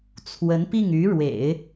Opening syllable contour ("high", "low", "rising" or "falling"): rising